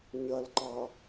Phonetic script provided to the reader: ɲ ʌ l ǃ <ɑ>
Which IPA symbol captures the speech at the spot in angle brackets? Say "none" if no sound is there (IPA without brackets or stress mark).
ɑ